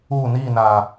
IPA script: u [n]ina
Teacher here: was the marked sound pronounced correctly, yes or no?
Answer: yes